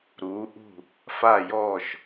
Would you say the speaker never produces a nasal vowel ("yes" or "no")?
yes